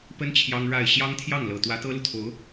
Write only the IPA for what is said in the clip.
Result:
pə˥n t͡ɕʰjɑ˥ŋ ɻa˥˩ɪ̯ ɕjɑ˥ŋt̪ʰjɑ˥˩ŋlɤ˨˩ t̪wä˧˥t̪ɤ˥lu˨t̪ʰo˧˥ʊ̯

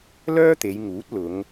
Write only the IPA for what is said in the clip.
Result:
lœː˥t̪e˨˧jŋuː˨˥t̚ lʊ˨˧ŋ

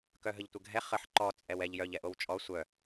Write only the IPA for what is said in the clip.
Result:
kœɦəʎtʷəɡʱɛ χəħ ǃɔ t͡sʼɛwɛʎ jœʎ ɛʔowt͡ʃʼɔ sʷœ

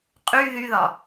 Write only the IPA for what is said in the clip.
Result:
qʼy ðyðɒ

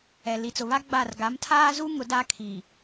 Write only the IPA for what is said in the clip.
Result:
ɛ˨ li˨t͡sʊ˨βa˦ ɡ͡ba˦˨r ɡa˨˦mtʰaː˦zu˦ ŋʊ˨˦da˦ kʰi˨

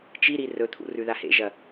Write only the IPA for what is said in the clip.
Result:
t͡ʃiɾi rɵt̪ʰṵ rʉðahḛʒɐ

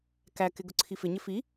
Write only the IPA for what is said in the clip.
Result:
kækɪ ɡʊǀʰifɪɲɪ fi

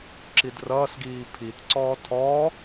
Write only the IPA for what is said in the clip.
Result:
ǁidrʌːsɡiː pʰitǀɔː tʰɔ

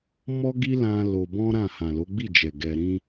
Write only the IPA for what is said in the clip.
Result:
mɔ˦ɡi˦lã˧ lo˧bɔ̃˦ɾã˦˨ hã˨lo˨˦ɡ͡bi˦˨d͡ʒɛ˨ ɡɛ˧ɾĩ˦

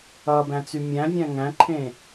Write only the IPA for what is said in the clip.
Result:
ʌ bæ̃t͡symʲæ̃vʲæ̃ ŋæ̃ǃʰẽ

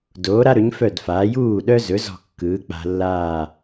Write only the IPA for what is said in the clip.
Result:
doː˩˥ɾa˥ɾɵ˩˥ɲ fœ˥˩dfaː˩˥ juː˥˩ɗœ˥zɵ˩˥ zɔ̤˥˩kːɯː˩˥ k͡pa̤˧lːaː˥˩

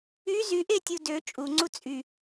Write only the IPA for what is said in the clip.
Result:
y zyʔetʲu dø t͡ʃʼuŋ͡ǀu t͡sʼy

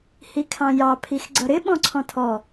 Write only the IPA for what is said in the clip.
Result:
hikʰɑ̃jɑ pʰixɡ͡ǀʌɾɪ ɓɔ̃ǀʰɔ̃tʰɔ

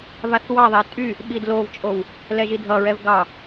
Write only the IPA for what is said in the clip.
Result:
vaθwɑðˤɛ tʼy | ɓidlovt͡ʃʼow | lɛʒidʱʌɹɛv ɡɑ

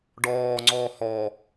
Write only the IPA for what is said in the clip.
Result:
ɖɔːŋ͡ǀɔː hɔ

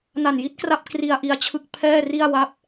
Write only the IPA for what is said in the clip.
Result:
na˨˩nji˦˥t̚kra˦˥p̚ kri˧a̯ ʔi˧a̯t͡ɕʰɯ˥˩k̚ pʰɛː˥˩ri˥˩a̯wa˦˥p̚

